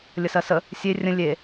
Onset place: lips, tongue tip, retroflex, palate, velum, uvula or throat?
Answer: tongue tip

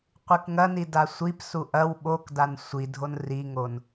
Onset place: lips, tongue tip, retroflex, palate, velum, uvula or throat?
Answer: uvula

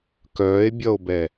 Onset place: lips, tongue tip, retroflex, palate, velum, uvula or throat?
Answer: velum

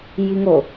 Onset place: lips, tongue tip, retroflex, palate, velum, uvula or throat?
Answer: palate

